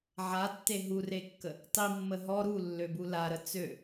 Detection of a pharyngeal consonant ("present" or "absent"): present